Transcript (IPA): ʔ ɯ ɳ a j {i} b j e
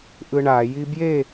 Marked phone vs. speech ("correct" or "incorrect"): correct